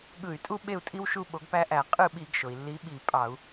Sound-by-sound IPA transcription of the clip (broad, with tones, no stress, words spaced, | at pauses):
ɠɯ˧˩˧y̯tʼu˦ɓe˦˨u̯ tʼi˦wʃu˦˨ ɓo˨˦ɡpæ˦ʔæ˧˩˧ qʼɯ˦˨ɓi˧˩˧ɡʃo˩i̯ lːi˨˦ɓi˧˩˧pʼɑ˧˩˧u̯